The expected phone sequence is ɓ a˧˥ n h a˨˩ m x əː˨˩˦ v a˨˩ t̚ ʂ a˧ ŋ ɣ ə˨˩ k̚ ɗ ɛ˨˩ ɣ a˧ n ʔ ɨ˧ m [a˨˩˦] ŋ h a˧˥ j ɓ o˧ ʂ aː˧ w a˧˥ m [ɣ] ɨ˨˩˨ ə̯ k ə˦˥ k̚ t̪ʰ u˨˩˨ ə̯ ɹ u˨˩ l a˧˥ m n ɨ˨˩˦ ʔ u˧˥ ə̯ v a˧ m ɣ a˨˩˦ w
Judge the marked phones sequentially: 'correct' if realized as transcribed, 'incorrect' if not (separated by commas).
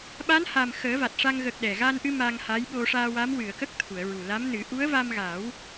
incorrect, incorrect